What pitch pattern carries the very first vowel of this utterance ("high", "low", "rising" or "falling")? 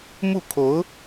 falling